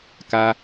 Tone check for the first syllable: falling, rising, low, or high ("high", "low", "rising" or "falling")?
high